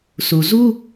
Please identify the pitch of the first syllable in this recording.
low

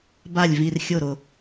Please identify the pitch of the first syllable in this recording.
falling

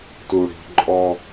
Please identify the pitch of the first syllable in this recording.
low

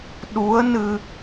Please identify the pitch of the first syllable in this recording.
rising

